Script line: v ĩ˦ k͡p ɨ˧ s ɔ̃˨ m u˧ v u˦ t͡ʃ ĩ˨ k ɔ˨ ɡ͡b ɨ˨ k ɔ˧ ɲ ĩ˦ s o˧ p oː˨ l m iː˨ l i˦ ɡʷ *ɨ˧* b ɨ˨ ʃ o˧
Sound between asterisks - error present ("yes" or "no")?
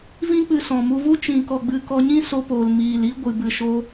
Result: yes